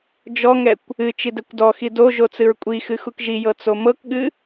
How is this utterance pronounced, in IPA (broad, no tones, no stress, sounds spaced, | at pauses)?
d͡ʒ ɔ ŋ ɛ kʷ | ɨ t͡ʃ i d ɛ kʷ d ɔ x i d o ʒ o t͡s ɨ ɹ kʷʼ i x ɨ x u k ʒ i j ɤ t͡s o m ɤ k ɠ ɨ